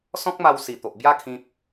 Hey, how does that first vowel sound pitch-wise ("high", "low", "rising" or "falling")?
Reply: high